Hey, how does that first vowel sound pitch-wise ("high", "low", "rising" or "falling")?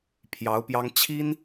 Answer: rising